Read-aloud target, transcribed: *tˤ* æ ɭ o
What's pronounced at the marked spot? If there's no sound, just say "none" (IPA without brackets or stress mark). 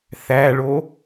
θ